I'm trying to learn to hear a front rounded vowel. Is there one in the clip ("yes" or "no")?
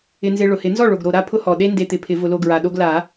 no